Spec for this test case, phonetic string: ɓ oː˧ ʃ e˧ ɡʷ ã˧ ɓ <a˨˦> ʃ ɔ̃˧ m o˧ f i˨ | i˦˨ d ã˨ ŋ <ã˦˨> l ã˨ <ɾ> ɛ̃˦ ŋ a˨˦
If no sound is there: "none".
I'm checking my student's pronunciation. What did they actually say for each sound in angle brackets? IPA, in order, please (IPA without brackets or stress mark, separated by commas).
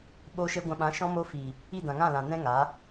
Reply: ã˨˦, ã˦˨, n